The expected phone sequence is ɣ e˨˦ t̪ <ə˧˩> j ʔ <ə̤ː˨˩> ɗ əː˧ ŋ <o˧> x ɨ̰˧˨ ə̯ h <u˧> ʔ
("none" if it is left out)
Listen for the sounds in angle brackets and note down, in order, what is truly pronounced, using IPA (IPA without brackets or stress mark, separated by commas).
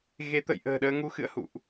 ə̰˧˨, ə̤ː˨˩, u˧, ṵ˧˨